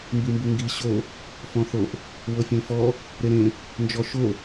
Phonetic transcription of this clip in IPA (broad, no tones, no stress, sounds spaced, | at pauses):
m b i m b u ŋ ɡ i ɕ o | f ɔ̃ θ o ʔ | w ɤ fʲ ẽ f ɔ | ɾ e ɾ ẽ | n d͡ʒ ɔ ʃ o